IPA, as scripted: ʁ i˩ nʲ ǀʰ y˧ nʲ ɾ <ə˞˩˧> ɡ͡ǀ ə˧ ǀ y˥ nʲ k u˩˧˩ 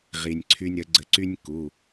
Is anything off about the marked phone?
yes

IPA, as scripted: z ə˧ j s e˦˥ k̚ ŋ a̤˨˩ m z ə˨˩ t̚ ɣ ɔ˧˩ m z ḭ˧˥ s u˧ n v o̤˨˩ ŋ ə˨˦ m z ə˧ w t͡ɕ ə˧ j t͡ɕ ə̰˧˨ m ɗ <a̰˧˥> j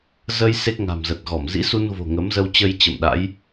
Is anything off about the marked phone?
no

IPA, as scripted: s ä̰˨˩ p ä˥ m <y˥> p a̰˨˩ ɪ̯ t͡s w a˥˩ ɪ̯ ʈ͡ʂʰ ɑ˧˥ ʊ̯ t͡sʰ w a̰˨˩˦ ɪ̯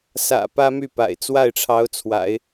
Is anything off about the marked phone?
yes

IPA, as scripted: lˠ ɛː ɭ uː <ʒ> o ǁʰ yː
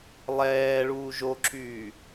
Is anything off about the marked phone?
no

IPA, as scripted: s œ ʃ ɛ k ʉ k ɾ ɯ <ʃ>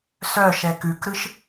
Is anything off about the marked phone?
no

